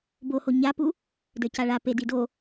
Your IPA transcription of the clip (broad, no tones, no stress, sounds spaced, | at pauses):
b o h o ɲ a p u | d ə˞ c a ɭ a p e d i d o